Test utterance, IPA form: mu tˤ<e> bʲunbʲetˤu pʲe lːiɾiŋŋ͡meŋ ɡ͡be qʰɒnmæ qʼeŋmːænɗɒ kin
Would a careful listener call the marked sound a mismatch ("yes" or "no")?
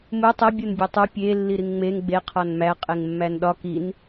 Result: no